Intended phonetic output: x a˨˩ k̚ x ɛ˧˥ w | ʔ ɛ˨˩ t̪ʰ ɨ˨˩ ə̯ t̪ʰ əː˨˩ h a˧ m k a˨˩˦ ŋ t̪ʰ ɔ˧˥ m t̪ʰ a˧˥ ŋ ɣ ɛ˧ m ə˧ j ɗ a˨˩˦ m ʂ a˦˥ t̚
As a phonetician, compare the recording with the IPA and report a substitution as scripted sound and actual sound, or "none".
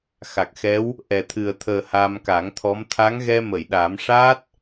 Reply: ə˧ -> ə˨˩˨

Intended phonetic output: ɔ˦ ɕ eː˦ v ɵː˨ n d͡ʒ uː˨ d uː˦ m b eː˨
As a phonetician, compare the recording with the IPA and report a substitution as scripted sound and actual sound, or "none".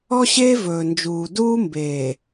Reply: none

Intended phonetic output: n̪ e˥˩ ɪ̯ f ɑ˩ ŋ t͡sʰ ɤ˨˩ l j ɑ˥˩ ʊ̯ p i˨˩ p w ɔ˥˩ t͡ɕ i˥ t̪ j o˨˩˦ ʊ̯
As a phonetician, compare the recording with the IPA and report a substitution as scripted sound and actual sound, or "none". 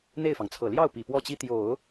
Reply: none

